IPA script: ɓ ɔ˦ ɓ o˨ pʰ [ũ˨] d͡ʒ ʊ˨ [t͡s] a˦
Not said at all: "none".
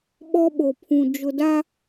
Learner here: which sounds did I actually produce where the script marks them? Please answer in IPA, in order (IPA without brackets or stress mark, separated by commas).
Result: ũ˨, d